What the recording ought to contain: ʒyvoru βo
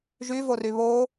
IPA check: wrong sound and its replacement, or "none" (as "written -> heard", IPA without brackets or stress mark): u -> y